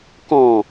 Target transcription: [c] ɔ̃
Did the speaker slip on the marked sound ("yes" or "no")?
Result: yes